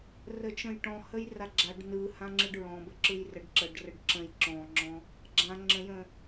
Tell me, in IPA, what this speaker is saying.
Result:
r ə t͡ʃ ə̃ j ʈ ɔ̃ h ə j r a ɡ͡ǁ a ɖ n ɯ h ã ŋ͡ǁ ɯ ɖ ɹ ɔ̃ b ə ǁ ɯ j r ə ɖ ǁ ə ɖ r ə ɖ ǁ ə̃ j ǁ ɔ̃ ŋ͡ǁ ɔ̃ | ɡ͡ǁ ã ŋ͡ǁ ə̃ j ə̃

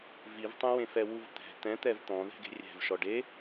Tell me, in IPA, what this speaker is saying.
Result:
v i v tˤ ẽ w ẽ f ɛ w u v t̪ ɛ̤ t̪ ɛ̃ t̪ ɛ v t̪ ɔ̃ ð ɛ̤ ɡ e̤ rʲ ɛ̤ v ʃ ɔ ɖ e

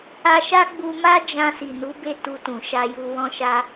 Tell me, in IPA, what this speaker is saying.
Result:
a˧ ʃ a˦ ɡ͡b u˧ m a˦ d͡ʒ ã˧ s i˨ n u˨˦ b e˦˨ t u˧ t ũ˨ ʃ a˧ j u˧ w ɔ̃˦ ʃ a˧

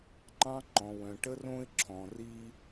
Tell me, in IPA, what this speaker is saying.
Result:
ŋ͡ǃ ɑ̃˦ ŋ͡ǃ ɔ̃˨ w œ̃˨ ʈ ə˦ r õ˦ ɪ̯ ǁʰ ɔ̃˨ r i˦

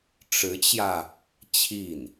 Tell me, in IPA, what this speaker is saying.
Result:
ʈ͡ʂ ɻ̩˧˥ t͡ɕ j ä˧ | t͡ɕʰ i˥˩ n

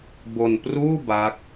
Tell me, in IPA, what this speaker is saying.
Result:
b o˧ n p r uː˥˩ b a˦˥ k̚

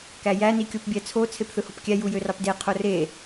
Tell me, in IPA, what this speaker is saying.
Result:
k æ j æ n i kʲ o p bʲ æ t͡sʰ o t͡sʰ e p θ ɯ h o p kʲ æ j u j ø r ɑ p d e qʰ o r e

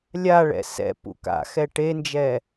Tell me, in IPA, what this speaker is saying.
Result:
lʲ a ɭ ɛ̰ s ɛ̰ p ṵ k a̰ x ɛ ʈ e n d͡ʒ ɛ

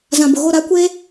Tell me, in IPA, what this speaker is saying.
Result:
z ã˨ b ʊ˨ ɣ o˦˨ ɾ a˦ kʷ eː˦

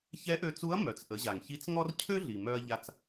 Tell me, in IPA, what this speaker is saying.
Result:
ç ɛ˧˥ ʔ ø˧ t͡s u˧˥ ɐ̯ m œ˩ t͡s ʔ ə˩˧ ʑ a˩ ŋ ç i˧˥ t͡s ŋ ɔ˥ r cʰ ø˥ ɮ i˩ m œ˥ ɐ̯ ʎ a˧ t͡s

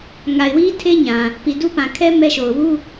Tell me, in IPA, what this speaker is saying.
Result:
ŋ a˨ ɪ̯ w i˦ tʰ e˦ ɲ ã˨ | p i˨ d u˦ p ã˨ kʰ ɛ˦ m ɛ˦ ʃ o˨ ʊ̯ w u˦

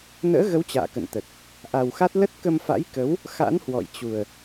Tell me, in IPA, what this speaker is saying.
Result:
n ə̰ː˧˥ ɣ ə˨˦ w t͡ɕ a̰ː˧˨ k ə̰˧˨ n t̪ ə˨˩ t̚ | ʔ a˨˩ w x a˦˥ t̚ l ə˦˥ t̚ k ə˧ m f a̰˧˥ j k ə˨˦ w | x a̰˧˥ n h w ɔ̰˧˨ j t͡ɕ u˨˩ ə̯

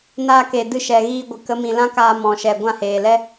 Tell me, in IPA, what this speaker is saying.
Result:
n aː˧ k e˨ d ɨ˧ ʃ ɛ˨ ɣ iː˧ ɡʷ ɨ˨ k ə˨˦ m ĩ˨ l ã˦ k aː˧ m ɔ̃˨ ʃ ɛ˨ ɡʷ ã˦˨ h eː˨ l ɛ˦

